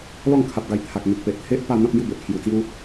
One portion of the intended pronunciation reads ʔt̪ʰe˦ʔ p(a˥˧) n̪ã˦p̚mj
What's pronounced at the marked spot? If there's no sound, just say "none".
a˥˧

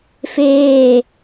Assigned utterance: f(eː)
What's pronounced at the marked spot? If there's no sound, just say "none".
eː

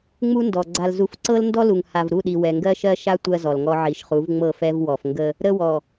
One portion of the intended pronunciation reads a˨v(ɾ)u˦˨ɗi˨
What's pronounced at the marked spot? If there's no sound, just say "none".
ɾ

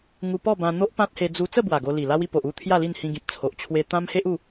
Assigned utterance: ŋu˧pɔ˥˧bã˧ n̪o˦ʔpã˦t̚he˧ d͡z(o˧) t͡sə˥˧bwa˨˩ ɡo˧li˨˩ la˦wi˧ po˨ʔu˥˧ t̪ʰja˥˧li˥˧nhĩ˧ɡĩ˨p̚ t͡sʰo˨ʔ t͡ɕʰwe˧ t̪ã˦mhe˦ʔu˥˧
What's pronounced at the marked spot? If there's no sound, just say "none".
u˧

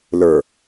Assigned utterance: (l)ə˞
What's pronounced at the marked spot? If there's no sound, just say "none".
l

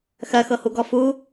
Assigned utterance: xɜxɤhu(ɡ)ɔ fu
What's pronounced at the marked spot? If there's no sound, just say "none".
ɡ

